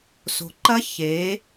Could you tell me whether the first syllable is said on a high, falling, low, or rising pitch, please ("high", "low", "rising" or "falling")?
low